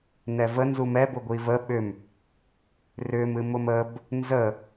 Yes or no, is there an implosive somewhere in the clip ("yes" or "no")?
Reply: yes